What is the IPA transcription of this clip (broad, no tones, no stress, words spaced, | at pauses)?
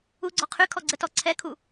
uɡ͡ǀɔ qʰy kʰɔɡ͡ǀətɔ ǀʰɛkʰu